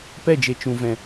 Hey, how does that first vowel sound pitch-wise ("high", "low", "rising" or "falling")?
falling